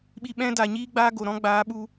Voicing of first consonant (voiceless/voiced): voiced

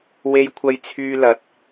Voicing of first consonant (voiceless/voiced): voiced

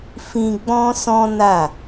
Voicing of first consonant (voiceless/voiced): voiceless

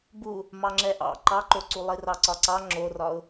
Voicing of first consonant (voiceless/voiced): voiced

